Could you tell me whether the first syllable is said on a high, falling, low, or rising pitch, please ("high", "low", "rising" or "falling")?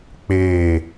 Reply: falling